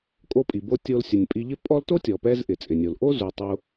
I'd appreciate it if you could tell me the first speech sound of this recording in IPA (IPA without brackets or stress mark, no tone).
kʼ